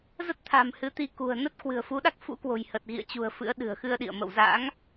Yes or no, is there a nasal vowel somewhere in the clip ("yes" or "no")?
no